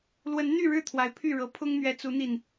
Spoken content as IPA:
lwə˨˦nn̪y˥˨ɻɻ̩˥˨ t̪ʰwa˨˦ɪ̯pʰy˥˨ɻɤ˨˦ pʰʊ˦ŋn̪ɥɛ˨˦t͡su˨˦n̪i˨˩n

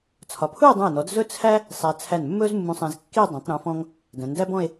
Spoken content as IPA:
t͡sʰɒ˩˧pʰu˥˧e̯dˤũ˧˩e̯nɔ˩˧d zɵ˥t͡sʰæ˥ | sˤæ˧ t͡sʰæ˧˩nmːɵ˥zmːũ˧sˤæ̃˧z kːi˥˧ dˤæ̃˩˧tˤɾũ˩˧fɔ̃˧ŋ | dæ̃˩˧ndæ˥bɔ̃˥˧e̯

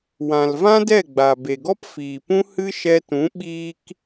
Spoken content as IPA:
wã˨lvã˦dɛ˦˨ ɡ͡ba˨ be˨ɡɔ˦p fiː˨pũ˦ hɨ˦ ʃɛ˧tũ˨˦ ɓiː˦k

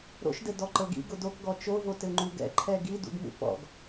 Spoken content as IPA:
ɾo̰ʃdɘ dɔǃɤɡḭ ɡʊdokɡɔ t͡ʃovo tɘŋ͡ǃuɡɛ̰ ǃʰɛɡi dṵɡmṵpɔ̰ɡ

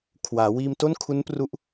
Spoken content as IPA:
kʰwaː˩˦ wiː˧mto˥˩n kʰu˦˥npru˦˥ʔ

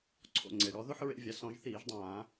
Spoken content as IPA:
ǀʰo̰˩ ŋ͡ǀe˩ɽɔ˩˧ ðo˦ħɹḛ˧˩˧vʲa˩˧ sɔ̃˧˩˧ʒθiː˧˩˧ʒdˤãː˧˩˧

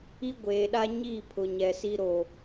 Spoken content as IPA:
i˦ɡʷeː˨ɗa˦ɲiː˦˨ pʰʊ˨ɲɛ˨si˦ ɾo˨

